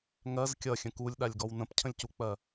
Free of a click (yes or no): yes